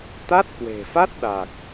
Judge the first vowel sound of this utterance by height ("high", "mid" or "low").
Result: low